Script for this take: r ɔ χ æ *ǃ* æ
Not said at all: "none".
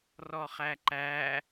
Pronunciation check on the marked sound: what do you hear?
ǃ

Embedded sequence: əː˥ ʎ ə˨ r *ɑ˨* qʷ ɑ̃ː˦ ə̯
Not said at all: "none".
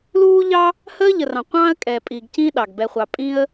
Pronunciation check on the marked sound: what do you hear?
ɑ̃˨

